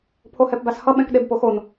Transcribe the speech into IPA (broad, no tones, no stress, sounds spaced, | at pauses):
pʰ o h ɛ p b a s h ʌ ɓ ɛ̃ k ɗ e b p o x o n